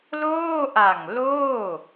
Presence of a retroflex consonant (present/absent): absent